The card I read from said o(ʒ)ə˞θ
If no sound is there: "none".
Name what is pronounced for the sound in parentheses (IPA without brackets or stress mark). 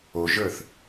ʒ